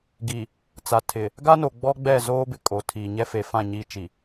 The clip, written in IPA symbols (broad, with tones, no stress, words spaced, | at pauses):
ɡi˨ | t͡sa˨tʰɪ˨ | ɡa˦no˨ ɡ͡bɔ˦ɡ͡bɛ˦˨ zoː˦bɪ˨kʼo˨ tʰiː˨ɲɛ˦ fe˨fã˦˨ ɲi˦t͡ʃi˨